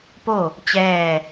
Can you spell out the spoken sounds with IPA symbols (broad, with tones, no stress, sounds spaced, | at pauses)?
p o˥˨ | t͡ɕ ɛː˥˨